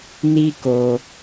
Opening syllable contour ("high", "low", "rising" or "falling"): high